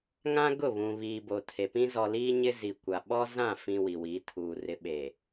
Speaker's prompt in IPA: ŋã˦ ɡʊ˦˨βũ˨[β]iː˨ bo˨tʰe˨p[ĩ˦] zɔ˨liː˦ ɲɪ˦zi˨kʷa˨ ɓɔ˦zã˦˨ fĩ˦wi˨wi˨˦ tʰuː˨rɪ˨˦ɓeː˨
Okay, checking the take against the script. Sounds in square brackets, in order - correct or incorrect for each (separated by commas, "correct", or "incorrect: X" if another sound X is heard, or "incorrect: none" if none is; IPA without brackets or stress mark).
correct, correct